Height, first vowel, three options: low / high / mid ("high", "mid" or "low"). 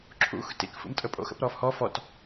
high